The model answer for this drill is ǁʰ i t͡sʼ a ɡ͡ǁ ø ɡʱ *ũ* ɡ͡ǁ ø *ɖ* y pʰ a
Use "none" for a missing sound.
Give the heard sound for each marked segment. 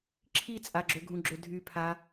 ũ, dʱ

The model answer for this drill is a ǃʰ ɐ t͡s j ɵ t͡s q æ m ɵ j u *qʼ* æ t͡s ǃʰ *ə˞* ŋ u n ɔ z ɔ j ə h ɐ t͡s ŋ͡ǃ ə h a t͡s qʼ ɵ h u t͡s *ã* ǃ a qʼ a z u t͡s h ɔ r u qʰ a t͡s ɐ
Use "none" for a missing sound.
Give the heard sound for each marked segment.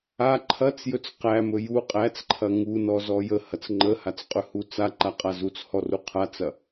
qʼ, ɐ, a

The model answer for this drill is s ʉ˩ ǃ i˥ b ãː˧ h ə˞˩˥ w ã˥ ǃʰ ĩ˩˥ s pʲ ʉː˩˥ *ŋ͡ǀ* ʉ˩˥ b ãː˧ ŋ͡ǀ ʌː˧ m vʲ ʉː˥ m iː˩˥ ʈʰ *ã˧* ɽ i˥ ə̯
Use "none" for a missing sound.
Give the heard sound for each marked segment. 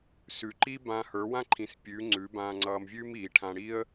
ŋ͡ǀ, ã˧

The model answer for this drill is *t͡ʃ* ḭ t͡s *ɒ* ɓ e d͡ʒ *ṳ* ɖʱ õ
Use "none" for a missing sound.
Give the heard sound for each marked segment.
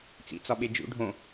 t͡s, ɒ, ṵ

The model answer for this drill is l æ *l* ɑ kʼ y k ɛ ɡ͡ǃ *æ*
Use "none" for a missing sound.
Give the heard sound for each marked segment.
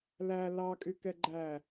l, æ

